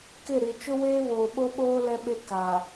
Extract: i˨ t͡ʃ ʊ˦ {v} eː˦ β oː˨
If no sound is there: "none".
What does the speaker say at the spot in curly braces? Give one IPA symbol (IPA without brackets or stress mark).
w